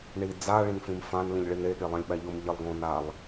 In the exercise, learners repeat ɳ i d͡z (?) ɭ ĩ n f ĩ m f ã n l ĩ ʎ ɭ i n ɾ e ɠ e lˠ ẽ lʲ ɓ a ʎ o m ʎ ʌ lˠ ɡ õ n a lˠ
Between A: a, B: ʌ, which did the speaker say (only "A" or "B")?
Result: A